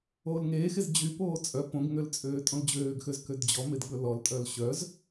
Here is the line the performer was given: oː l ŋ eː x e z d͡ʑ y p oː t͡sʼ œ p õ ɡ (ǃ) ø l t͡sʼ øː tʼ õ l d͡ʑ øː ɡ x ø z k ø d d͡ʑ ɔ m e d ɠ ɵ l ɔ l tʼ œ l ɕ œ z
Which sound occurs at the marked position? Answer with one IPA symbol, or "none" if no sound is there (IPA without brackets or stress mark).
ŋ